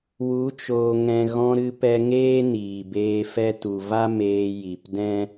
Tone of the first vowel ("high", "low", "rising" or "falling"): rising